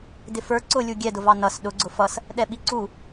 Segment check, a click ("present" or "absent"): present